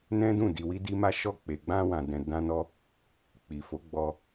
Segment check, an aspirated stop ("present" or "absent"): absent